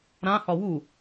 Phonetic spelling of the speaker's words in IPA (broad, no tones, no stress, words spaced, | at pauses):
ɾãhɒ wu